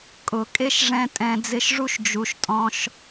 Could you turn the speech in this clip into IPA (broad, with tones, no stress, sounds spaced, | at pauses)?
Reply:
kʼ ʊ˨ kʼ e˦ ʃ ʐ ɛ̃˧ tʼ ɛ̃˧ d͡z ɪ˦ ʃ ʐ u˦ ʃ d͡ʒ u˨ ʃ tʼ ɔ̃˧ ʃ